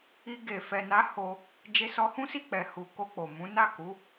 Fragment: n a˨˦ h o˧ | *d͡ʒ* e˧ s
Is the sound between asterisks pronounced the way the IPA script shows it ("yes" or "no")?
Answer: yes